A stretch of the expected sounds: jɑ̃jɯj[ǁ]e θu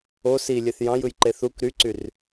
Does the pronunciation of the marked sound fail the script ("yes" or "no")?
yes